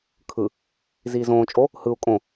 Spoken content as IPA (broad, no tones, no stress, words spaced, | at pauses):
kʰɯ | ziːzõːt͡ʃʼo | hɯu̯ kʼõ